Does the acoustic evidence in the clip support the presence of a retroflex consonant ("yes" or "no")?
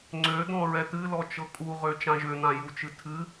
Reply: no